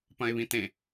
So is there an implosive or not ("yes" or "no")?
no